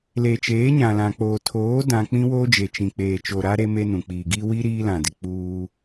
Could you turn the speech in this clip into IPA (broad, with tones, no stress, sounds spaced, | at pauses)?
l e˨ t͡ʃ eː˨˦ ɲ ã˨ l ã˨ k͡p oː˨ tʰ oː˨˦ d ã˦ k͡p ĩ˦ w oː˦ d͡ʒ e˨ t͡ʃ ĩ˨ k͡p eː˨ t͡ʃ o˨ ɾ a˦ ɾ e˦ m e˦ n ũ˨ k͡p i˨ ɡ i˦ w i˦ ɾ iː˦ l ã˨ d ɪ˨ k͡p uː˦